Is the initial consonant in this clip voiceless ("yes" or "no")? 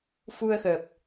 yes